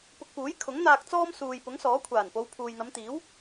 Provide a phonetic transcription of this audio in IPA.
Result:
pʊ˧k̚puː˨˥j kʰʊ˨˥ŋn̪aː˧k̚ t͡sɔː˥msuː˨j pʊ˨˥ŋsɔː˨˥kʷʰaː˨˩npo˨˧w pʰuː˨jn̪ɐ˨˧mt̪iː˨˥w

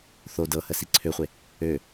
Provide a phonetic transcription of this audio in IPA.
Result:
θo dɤhə siǀʰøχʷe | ø

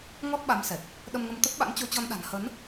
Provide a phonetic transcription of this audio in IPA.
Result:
ŋɔ˦˥t̚ɓa˨˦msɛ˨˩t̚ | ɗə˧mŋə˧mt̪ə˦˥p̚ ɓa̰˧˥nt͡ɕo˧t͡ɕɔ˧nɗa̤˨˩n hə˨˦n

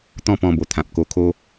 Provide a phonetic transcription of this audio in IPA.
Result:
t̪ɔ̃˥˧pɔ̃˧bo˨˩t̪ʰã˨p̚ ko˧kʰo˦

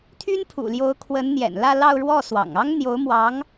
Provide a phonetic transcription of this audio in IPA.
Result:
t̪ʰy˥npʰṵ˨˩ljo˧˥ʊ̯kʰwə˧˥n n̪jɛ̰˨˩nlä˥˧lɑ˥˧ʊ̯ ɻwɔ˥˩ swɑ̰˨˩ŋ ɑ˥ŋn̪jo˧˥ʊ̯mwɑ˧˥ŋ

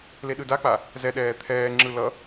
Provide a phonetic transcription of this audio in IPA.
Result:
leɗɯdak͡pa | zɛɗɛː t̪ʰɛːŋ͡ǁɯ lʌ

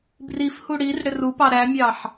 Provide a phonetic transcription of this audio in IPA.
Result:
brifhu ɽir ɽɪrupɑ ɾæmʲɑħ

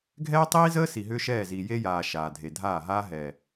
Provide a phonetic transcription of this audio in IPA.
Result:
ɡʱɛː˦tˤiː˦zəː˦ si˨ɦʏː˦ʃɛː˦˨ziː˨ je˦jaː˨ ʃaː˨ dʱe˨dʱaː˦˨ɦaː˦ ɦɛː˨

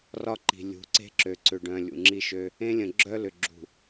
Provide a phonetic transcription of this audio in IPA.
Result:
rɒ˦ǃi̤˨ lʲṳ˨˦ǀe̤˦ǁø˨ ǀʏ˨ɖœ̃˨ lʲṵ˨ŋ͡ǁi˦ʃø˦ | ẽ˦lʲə̃˨ ɡ͡ǁœ˦lʏ˨ɡ͡ǁṳ˨

